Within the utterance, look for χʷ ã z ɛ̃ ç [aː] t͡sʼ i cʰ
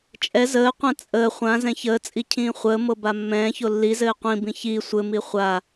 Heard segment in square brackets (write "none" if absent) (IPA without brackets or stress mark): əː